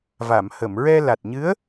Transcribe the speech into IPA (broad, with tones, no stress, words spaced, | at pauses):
va˨˩˨mhə˨˩˨m ɹɛ˧la˨˩t̚ɲɨ˧˥ə̯